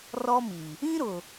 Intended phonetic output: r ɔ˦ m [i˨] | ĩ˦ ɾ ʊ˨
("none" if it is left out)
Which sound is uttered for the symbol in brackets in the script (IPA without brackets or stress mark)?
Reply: i˨